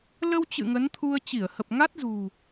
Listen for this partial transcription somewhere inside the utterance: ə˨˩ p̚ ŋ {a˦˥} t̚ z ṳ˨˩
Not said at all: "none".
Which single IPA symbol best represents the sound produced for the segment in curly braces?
a˦˥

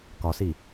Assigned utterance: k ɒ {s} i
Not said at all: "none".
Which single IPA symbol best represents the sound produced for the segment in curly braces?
s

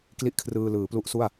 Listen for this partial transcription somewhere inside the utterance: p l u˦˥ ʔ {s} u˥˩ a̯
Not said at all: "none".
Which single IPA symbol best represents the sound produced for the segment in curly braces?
s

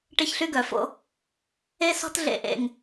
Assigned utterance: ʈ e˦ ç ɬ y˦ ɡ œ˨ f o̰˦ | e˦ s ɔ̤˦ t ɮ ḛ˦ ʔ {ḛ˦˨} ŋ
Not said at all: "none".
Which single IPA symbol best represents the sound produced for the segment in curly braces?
ḛ˦˨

